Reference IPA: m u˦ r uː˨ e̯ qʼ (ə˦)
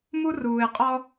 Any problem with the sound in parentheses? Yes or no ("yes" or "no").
yes